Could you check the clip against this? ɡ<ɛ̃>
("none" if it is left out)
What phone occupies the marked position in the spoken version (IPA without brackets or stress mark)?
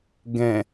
ɛ̃